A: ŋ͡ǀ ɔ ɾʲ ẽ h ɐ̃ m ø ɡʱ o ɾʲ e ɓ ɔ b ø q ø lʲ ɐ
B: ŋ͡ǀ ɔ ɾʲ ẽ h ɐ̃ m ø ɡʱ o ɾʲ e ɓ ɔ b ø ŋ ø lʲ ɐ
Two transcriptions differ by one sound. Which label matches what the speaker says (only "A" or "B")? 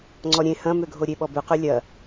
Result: A